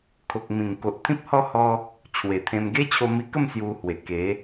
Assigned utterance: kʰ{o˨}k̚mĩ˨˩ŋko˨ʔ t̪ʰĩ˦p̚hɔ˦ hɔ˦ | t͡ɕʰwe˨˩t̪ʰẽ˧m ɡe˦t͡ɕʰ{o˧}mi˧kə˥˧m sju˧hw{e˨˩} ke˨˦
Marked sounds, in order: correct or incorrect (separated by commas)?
correct, correct, correct